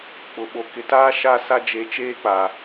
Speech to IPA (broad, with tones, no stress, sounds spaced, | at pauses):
k͡p ʊ˨ ɓ o˨ k ɪ˨ t aː˦ ʃ a˦˨ s a˦ d͡ʒ e˨˦ t͡ʃ eː˦ k͡p a˨